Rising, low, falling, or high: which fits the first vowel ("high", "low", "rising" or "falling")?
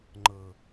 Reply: low